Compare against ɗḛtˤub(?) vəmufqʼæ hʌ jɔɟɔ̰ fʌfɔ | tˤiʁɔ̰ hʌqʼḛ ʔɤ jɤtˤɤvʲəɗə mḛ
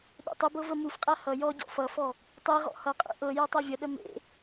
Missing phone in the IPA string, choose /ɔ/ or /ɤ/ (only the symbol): ɤ